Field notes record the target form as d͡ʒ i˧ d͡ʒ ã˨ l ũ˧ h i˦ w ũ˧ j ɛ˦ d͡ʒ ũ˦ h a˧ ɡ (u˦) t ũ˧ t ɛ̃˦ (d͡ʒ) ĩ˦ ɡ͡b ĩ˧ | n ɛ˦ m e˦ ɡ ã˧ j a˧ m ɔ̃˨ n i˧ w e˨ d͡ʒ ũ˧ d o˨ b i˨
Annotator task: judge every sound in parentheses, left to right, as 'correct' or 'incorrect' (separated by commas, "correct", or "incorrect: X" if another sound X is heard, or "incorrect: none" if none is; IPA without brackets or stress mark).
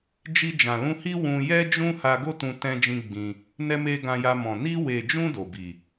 incorrect: o˦, correct